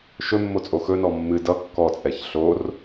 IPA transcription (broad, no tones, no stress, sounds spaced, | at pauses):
ʃ ɵ mː o t͡sʼ o x ɵ n ɔ mː ɨ d ʌ kː ɔ t͡sʼ ɛ ç ɬ o r